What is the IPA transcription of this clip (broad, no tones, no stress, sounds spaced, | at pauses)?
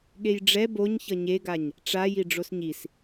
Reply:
ɠ e j ɖ͡ʐ ɛ b o ɲ ç ʌ ɲ e ɡ a ɲ | ʈ͡ʂ a j i ɖ͡ʐ o s ɲ i s